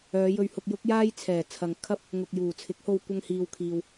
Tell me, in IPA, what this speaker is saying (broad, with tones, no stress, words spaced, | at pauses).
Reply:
œː˨˧jɵ˧ɥhʊ˧k̚ jʊ˥k̚ jaː˥jt͡sʰɛː˨˩ t͡sʰɐ˨ŋkʰɐ˥p̚ | ŋʊ˨k̚juː˨˩t͡sʰɪ˨˥k̚ho˧w kʷɐ˧ŋhiː˨wkʰiː˨w